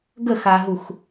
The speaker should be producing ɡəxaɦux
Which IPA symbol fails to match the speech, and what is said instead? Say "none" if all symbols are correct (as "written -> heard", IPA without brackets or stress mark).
none